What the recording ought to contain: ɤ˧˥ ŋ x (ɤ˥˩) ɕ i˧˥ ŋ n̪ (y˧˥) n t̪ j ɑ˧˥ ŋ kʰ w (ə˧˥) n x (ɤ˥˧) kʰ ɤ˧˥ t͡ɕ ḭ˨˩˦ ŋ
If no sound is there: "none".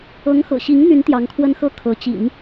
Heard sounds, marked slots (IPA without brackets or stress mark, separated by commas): ɤ̰˨˩, y˧˥, ə˥, ɤ˥